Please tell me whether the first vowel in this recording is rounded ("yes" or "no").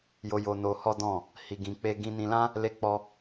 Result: yes